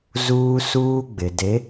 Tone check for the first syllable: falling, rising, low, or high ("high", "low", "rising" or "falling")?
high